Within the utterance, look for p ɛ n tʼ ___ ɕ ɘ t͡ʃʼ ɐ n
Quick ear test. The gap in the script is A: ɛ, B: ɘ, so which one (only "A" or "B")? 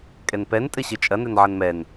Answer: B